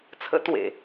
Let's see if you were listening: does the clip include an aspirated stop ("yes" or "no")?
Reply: yes